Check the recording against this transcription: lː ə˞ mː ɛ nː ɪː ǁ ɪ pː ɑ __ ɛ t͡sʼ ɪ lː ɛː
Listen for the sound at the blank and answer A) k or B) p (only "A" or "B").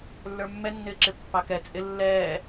A